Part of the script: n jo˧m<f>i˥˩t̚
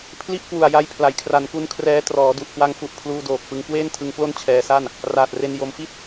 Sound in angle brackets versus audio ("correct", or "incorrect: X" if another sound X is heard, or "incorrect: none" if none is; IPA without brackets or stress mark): correct